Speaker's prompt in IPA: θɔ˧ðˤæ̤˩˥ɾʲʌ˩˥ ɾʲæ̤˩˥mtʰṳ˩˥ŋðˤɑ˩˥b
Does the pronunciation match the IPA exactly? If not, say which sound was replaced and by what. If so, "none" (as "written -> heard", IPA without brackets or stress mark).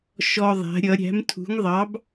θ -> ʃ